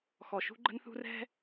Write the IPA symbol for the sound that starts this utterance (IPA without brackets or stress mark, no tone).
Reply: x